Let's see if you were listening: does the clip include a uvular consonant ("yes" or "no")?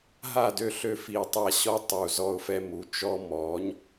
no